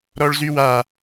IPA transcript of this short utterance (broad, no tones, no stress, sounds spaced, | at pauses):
ɾ ɔ ɭ z y w a